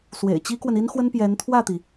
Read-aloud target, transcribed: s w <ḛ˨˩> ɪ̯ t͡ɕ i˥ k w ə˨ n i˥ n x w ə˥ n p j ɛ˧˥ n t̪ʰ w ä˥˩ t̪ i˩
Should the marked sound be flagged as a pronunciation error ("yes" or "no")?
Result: no